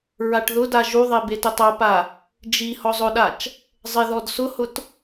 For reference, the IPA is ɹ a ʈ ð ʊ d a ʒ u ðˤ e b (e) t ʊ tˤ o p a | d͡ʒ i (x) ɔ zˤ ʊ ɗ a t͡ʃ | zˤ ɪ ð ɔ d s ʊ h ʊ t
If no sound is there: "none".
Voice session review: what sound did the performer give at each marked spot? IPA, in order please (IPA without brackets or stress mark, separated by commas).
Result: e, h